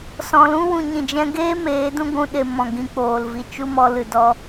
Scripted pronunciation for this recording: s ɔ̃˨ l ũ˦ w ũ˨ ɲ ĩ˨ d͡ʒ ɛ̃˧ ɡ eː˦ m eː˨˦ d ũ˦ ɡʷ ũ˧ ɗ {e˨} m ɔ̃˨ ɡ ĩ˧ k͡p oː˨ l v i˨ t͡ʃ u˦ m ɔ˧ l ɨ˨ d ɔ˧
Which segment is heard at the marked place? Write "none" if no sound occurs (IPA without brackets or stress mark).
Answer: e˨